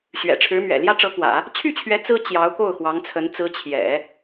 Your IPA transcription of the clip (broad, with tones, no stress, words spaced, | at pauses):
ɕɥɛ̰˨˩ ʈ͡ʂʰɻ̩˧˥mɥɛ̰˨˩ ljä˥ʈ͡ʂɤ˧˥kwä̰˨˩˦ | t͡ɕʰy˥˩t͡ɕʰɥɛ˧˥ t͡sɹ̩˥ t͡ɕjɑ˧˥ʊ̯ko˥˩ʊ̯xwɑ˧˥ŋt͡sʰə˧˥n t͡sɹ̩˧˥ t͡ɕʰjɛ̰˨˩˦